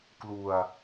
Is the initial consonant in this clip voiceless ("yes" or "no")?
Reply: yes